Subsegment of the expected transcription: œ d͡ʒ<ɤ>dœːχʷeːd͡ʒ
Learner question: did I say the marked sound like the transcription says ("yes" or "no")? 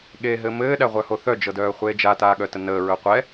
yes